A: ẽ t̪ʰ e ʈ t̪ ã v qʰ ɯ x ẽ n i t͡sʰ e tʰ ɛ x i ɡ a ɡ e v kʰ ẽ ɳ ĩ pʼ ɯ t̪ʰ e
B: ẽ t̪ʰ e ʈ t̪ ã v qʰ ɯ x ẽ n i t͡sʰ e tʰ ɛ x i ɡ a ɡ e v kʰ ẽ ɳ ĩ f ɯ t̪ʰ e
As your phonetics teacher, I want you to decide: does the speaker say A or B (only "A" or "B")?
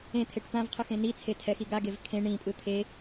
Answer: A